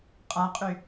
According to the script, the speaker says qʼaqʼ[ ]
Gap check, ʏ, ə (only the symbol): ʏ